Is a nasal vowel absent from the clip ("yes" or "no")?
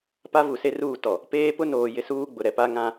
no